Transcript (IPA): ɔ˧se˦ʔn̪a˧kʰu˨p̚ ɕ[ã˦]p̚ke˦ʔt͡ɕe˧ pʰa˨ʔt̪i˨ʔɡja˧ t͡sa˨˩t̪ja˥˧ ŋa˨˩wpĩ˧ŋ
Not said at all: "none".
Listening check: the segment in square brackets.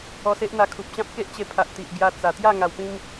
ã˦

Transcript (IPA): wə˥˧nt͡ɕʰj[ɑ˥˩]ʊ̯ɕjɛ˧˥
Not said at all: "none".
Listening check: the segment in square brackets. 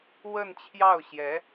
ɑ˥˩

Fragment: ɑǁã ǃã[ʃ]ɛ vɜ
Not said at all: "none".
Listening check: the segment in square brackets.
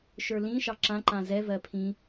z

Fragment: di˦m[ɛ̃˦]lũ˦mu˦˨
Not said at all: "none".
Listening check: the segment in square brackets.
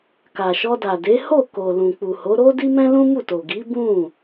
ɛ̃˦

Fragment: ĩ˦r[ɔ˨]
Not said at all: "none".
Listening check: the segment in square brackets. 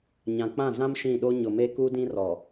ɔ˨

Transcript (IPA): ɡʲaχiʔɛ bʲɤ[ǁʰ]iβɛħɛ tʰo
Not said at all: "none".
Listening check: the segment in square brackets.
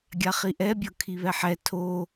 kʰ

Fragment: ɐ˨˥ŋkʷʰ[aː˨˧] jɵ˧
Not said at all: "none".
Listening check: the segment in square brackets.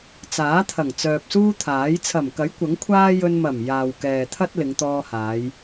aː˥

